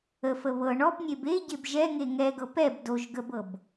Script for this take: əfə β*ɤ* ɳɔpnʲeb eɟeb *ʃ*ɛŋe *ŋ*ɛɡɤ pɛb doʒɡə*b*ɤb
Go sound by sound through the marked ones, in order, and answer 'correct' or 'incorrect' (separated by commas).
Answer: correct, incorrect, correct, correct